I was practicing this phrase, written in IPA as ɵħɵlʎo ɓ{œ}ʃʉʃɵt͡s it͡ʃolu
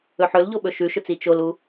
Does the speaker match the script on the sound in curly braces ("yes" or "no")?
no